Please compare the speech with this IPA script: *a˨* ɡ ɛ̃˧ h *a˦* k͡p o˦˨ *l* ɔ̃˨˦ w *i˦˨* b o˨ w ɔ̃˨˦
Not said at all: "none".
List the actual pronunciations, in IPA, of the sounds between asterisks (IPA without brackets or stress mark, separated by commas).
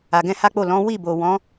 a˨, a˦, l, i˦˨